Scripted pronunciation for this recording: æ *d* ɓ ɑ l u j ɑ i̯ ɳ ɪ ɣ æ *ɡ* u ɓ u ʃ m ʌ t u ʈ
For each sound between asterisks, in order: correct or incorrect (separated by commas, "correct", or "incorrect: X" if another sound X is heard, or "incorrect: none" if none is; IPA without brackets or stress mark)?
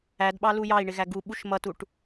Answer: correct, correct